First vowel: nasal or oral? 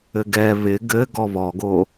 oral